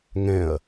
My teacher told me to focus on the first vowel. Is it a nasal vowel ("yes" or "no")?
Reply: yes